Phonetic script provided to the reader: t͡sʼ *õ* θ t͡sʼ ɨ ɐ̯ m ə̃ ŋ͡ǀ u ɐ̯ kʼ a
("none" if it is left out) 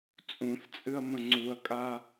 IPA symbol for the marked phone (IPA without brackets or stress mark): ũ